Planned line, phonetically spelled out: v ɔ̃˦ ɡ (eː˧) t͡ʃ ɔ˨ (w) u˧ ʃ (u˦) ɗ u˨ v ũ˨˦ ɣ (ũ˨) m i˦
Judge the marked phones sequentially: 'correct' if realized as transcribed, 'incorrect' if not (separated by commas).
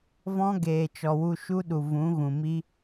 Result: incorrect, correct, correct, correct